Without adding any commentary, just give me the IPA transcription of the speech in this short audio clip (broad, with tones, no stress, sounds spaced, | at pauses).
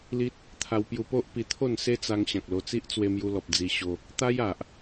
l i˦ t̚ | t̪ʰ a˧ w p j u˧ p o˦ ʔ p i˧ t̪ʰ o˥˧ n s e˦ t͡s a˧ ŋ ɕ ã˨ k̚ l o˧ t͡s i˦ ʔ t͡s w e˧ m j u˧ l ɔ˨ p̚ d͡z i˧ ɕ o˧ | t̪ a˦ j a˨ ʔ